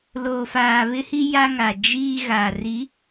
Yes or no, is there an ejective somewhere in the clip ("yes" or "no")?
no